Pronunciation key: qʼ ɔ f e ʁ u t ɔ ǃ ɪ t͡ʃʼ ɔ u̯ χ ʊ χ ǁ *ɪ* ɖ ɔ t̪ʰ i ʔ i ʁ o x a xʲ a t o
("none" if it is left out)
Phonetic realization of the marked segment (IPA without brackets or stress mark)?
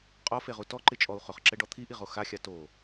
ɛ